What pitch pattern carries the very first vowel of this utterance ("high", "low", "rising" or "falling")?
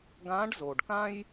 rising